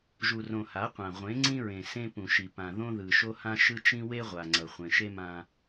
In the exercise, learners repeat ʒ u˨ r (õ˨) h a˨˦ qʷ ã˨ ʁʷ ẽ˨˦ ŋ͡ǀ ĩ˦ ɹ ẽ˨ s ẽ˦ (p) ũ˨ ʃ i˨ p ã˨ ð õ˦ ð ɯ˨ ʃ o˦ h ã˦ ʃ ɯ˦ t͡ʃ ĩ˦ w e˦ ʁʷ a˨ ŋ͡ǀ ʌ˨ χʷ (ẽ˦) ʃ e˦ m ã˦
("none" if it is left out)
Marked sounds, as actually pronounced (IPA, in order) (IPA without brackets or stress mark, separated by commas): õ˨, p, ẽ˨